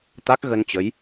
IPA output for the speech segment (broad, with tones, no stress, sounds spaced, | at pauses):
t̪ a˦˥ k̚ ɣ ə˧ n t͡ɕ ə˨˦ j